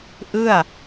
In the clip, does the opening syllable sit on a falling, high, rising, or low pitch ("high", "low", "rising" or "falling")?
falling